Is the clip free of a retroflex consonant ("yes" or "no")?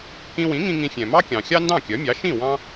yes